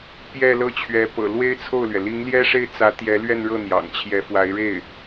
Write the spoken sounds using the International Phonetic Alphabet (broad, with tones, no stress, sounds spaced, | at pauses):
p j ɛ˥˧ l ɤ˥˩ t͡ɕʰ ɥ ɛ˧˥ p ɤ̰˨˩ l w e˥ ɪ̯ t͡sʰ o˥˩ ʊ̯ l ɥ ɛ˩ l i˧˥ ŋ l j ɛ˥ ʂ e˥˩ ɪ̯ t͡s ä˧˥ t̪ j ɛ˧˥ l ɥ ɛ˥˧ n ɻ ɤ˥˩ n̪ j ɑ̰˨˩ ŋ t͡ɕʰ j ɛ˧˥ f w a˧˥ ɪ̯ ɻ e˥˩ ɪ̯